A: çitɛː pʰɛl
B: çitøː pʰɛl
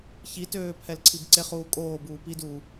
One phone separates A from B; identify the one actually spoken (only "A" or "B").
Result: B